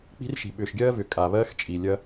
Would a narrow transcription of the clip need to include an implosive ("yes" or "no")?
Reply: yes